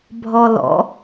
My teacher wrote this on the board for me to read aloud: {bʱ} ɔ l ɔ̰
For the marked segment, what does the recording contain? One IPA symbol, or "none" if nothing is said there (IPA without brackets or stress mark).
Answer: bʱ